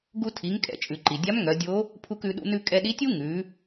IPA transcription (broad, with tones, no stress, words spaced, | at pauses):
ɡu˧tʰi˩˧ŋkʼɛ̰˩˧t͡ʃʼʉ˩ ǃi˩dʲa˧˥mŋœ˩˧dʲo˧˥ | pʰu˧kʉ˩˧ɗṵ˧ nʉ˧kʼɛ˧ɗi˧˥tʲu˥ ŋʉ˩˧